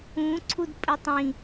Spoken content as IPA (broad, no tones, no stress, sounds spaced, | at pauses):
ũ ǀʰ u d pʼ ɵ tˤ ĩ